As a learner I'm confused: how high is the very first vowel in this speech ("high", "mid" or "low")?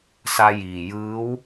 low